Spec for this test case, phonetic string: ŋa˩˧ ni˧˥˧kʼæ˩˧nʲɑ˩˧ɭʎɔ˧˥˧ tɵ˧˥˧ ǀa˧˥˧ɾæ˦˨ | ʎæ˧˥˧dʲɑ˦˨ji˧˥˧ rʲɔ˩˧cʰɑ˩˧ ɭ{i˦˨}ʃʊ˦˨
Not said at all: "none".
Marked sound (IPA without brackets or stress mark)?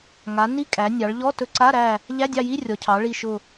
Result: i˦˨